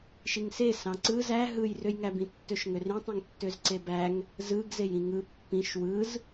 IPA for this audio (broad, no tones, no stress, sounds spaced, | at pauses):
ʃ i ŋ s e s ɑ̃ ǀ ɯ z æ ɦ ɯ j r ø j ŋ æ b ĩ tː ø ʃ ŋ ø r ĩ tˤ ĩ ŋ tː ø z ǀ e b æ ŋ | z ɯ ɡ z e j ĩ ŋ ɯ pː ĩ ʃ w ɯ z